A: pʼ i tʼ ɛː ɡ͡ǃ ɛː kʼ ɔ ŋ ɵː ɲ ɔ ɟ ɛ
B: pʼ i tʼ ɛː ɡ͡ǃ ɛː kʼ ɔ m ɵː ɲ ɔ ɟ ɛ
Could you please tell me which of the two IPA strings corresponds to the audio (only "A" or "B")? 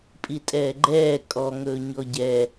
A